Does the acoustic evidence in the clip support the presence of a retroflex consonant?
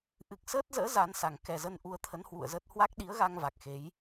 no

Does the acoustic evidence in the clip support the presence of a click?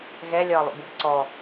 yes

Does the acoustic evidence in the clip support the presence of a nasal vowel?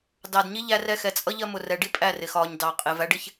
no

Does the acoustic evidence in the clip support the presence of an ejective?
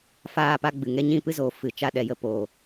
no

